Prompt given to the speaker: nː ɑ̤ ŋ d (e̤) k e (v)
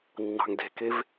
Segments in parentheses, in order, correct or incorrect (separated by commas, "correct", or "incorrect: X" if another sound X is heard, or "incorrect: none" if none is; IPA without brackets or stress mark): correct, correct